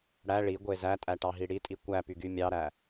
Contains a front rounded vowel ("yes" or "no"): yes